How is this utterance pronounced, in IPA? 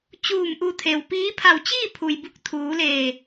t͡ɕ uː˧˩ m ʔ u˧˩ t̪ʰ e˩ w p iː˧˥ pʰ a˧˩ w t͡ɕ iː˥˨ pʰ u˩ j b u˧˥ k̚ t̪ʰ uː˩˧ l eː˧˩

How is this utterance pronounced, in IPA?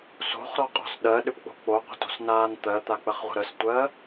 s o̤ χ ɾ ɔ qʼ ɔ̤ s ɗ ɜ ɗ ʏ p k͡p o̤ k͡p o qʷ ə̤ t o̤ s n aː n t̪ ɜ t̪ a k͡p ə χ ʁʷ ə̤ ɾ ə s tʷ ɜ

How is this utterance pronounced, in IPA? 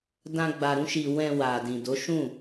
d ã˧ ɡ͡b a˧ ɾ ũ˦ ʃ i˧ w ɛ̃˧ w a˨ d ĩ˨ d o˨˦ ʃ ũ˦˨

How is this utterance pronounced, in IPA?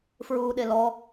f ɹ uː ɗ e l ɔ

